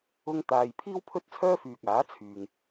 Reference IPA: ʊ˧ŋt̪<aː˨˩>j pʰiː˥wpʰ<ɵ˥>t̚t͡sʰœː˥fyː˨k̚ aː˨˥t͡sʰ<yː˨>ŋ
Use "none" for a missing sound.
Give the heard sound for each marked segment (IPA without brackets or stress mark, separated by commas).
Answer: aː˨, ɵ˥, yː˨